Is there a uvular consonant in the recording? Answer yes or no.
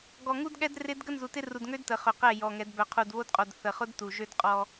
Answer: yes